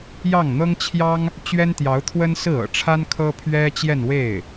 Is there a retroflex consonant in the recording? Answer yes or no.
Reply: yes